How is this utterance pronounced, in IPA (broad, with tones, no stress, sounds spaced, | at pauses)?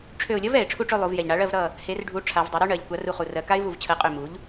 ʈ͡ʂʰ ø˧˩ ʊ̯ lʲ ʌ˦˥ v ɛ˩ ɪ̯ ʈ͡ʂʰ u˥˨ ʈ͡ʂ ø˥˨ lˠ u˩˧ v j ɛ˩ ʎ ɳ a˩˥ ɭ ɜ˥˨ v ɾ ʌ˥˨ | h e˩˧ r ɖʱ u˩˧ ʈ͡ʂʰ a˩˧ v dˤ e˩˥ ɾ u˦˥ ɳ ɜ˩˧ ʎ kʷ a˩˥ r u˧˩ χ u˩ r ɜ˩˧ k a˦˥ ɪ̯ v u˧˩ v t͡ɕʰ ɜ˩˥ qʼ ø˧˩ m u˩˥ ʎ